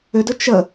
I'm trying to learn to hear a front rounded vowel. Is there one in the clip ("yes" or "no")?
yes